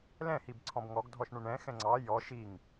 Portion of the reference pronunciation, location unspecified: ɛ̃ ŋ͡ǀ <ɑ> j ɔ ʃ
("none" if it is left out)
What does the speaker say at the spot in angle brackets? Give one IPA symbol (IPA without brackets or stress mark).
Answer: ɑ